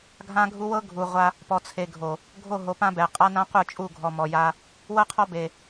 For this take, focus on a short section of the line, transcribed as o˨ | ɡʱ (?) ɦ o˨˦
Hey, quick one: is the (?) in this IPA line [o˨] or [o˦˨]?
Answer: o˦˨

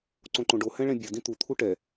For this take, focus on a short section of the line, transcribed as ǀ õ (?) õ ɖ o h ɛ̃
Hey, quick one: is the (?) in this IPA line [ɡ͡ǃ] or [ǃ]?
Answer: ǃ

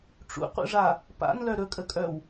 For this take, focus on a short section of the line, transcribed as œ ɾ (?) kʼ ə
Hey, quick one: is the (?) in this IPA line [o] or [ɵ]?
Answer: ɵ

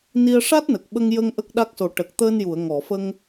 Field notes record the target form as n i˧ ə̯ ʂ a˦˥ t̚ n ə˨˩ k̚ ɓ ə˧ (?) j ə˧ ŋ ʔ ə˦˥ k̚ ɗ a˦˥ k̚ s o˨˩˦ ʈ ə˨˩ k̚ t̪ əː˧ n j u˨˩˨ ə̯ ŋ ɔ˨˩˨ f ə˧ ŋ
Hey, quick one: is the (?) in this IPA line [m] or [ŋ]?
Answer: ŋ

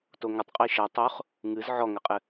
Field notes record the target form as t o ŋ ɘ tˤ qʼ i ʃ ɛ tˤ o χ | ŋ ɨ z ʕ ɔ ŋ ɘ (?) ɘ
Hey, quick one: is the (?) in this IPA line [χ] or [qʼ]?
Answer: qʼ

